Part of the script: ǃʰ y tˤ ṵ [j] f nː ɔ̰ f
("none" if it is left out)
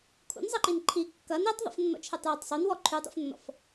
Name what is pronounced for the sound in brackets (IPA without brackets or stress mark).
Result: none